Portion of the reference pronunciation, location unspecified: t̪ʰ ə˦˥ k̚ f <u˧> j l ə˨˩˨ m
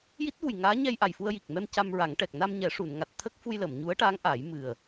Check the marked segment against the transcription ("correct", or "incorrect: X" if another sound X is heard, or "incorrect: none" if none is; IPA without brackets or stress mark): correct